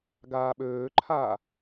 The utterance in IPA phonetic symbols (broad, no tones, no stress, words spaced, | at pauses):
ɡaːɓøːǃʰaː